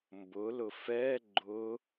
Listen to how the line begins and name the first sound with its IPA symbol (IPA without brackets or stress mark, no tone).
m